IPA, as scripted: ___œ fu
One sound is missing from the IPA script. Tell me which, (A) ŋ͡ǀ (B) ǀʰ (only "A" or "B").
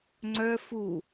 A